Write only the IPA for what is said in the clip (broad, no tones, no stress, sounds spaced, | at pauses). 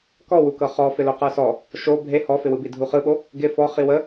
k ɔ w u k ɤ χ ɔ f ɪ l o q ə˞ s ɔ | ʃ o bʱ e h ɔ f ɪ w ɯ b i dʱ u χ ɯ ɓ o | ɡ ɪ f ɔ χ i w ə